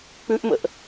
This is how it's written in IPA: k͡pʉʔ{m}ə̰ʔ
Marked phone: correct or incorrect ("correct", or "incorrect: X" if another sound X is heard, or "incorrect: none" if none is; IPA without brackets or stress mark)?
correct